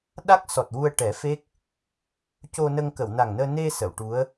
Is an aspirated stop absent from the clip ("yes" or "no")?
yes